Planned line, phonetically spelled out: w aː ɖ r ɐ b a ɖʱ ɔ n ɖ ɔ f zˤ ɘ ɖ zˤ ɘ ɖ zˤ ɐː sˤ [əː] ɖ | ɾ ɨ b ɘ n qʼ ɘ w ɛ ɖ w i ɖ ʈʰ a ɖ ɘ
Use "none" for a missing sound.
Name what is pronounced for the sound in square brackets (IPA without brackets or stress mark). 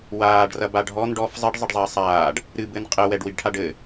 aː